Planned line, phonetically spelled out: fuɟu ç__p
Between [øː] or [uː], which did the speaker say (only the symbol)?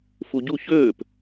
øː